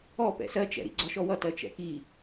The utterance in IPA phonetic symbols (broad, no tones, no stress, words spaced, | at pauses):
ɔ pɛ̰sɜt͡ʃɛ̰ɾḭ ɡ͡ǀɒʃɔwʌtɜ t͡ʃɛ̰ki